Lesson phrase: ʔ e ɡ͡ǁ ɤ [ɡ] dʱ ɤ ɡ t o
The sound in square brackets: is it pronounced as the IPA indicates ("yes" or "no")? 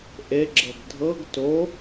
yes